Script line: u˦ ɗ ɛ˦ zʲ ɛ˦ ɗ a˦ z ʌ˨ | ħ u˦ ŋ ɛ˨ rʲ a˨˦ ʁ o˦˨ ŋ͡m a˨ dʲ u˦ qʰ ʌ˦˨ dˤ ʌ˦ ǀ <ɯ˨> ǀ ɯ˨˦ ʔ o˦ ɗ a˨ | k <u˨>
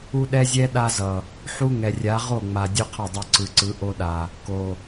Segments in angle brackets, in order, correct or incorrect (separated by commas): correct, incorrect